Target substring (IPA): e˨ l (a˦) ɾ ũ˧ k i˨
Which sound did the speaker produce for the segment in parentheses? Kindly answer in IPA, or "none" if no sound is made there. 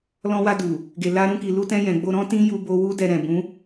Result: a˧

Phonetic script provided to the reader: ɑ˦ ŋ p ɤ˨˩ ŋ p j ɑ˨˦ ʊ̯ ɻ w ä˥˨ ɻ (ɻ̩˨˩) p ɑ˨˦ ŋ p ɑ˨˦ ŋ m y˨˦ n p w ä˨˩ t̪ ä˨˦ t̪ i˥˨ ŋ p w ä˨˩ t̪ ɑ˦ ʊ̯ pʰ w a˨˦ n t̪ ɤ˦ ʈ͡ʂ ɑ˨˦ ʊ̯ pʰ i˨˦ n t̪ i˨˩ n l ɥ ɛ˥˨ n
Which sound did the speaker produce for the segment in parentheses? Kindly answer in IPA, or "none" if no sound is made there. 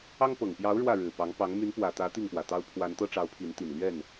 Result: ɻ̩˨˩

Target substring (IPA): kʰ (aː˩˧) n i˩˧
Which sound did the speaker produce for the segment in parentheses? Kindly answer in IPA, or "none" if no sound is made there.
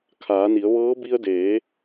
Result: aː˩˧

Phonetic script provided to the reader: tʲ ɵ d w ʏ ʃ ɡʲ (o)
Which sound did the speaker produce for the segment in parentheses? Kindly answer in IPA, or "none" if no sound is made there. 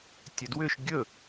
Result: ɵ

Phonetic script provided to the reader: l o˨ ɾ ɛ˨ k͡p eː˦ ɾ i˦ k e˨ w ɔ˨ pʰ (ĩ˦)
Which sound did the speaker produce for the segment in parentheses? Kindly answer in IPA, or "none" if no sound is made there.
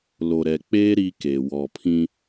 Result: ĩ˦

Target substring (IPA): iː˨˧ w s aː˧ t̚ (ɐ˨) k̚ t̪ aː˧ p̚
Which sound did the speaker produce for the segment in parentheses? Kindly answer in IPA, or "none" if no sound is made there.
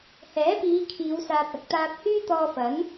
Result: ɐ˨˥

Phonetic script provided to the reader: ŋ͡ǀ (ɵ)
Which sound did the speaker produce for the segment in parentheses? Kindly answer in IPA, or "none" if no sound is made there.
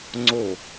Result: o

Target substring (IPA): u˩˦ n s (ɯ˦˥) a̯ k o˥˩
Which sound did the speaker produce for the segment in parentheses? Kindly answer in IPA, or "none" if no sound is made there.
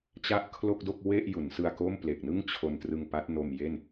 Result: ɯ˧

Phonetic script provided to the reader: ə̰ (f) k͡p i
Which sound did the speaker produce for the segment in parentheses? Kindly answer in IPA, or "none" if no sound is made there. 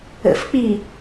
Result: f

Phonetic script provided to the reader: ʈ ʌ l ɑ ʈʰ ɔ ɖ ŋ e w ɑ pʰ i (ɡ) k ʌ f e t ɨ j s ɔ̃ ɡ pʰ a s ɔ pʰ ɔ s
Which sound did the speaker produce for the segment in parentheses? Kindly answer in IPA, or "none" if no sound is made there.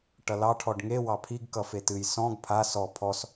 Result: ɡ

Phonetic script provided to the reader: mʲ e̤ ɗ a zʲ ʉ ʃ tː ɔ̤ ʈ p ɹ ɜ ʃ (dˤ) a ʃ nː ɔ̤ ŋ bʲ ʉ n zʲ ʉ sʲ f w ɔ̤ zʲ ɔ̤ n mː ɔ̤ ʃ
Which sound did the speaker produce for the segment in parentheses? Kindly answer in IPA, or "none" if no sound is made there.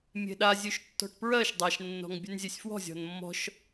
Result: dˤ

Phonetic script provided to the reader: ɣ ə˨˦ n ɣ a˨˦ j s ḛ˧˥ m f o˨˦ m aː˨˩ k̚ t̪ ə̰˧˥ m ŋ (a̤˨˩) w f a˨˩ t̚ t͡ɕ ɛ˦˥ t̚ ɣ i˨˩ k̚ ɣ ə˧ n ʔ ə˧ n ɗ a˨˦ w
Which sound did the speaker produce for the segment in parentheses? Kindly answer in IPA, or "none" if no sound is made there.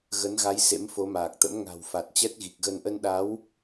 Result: a̤˨˩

